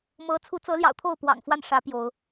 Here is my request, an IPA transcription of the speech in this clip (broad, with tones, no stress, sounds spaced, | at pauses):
m ɤ˨˦ t͡sʰ u˨˦ t͡s ɤ˨˦ l j ɑ̰˨˩ ʊ̯ t̪ʰ o˥˨ ʊ̯ p w ɑ̰˨˩ ŋ f w a˥˨ n ʂ ä˨˦ p j o˨˦ ʊ̯